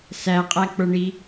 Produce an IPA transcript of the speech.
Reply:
s æ qʼ æ k͡p ə˞ ɳ i

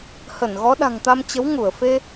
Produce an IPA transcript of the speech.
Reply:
h ə˧˩ n ɣ ɔ˨˦ ɗ a̤˨˩ ŋ t̪ a˧ m t͡ɕ ə˨˦ w ŋ u˧˩ ə̯ f e˧

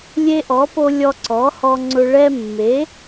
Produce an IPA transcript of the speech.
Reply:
lʲ e˦ ʔ ɔ˨˥ p o˦ lʲ ɔ˦ ǀ ɔ˨˥ h ɔ˦ ŋ͡ǀ ʊ˦ ɭ ɛ˦ mː e˨˥

